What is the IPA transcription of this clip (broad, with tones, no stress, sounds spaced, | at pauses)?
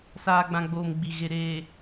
s aː˨ ɡ͡b ã˨ ɡ͡b oː˨ m ɡ͡b i˨ ɣ e˨ ɾ eː˨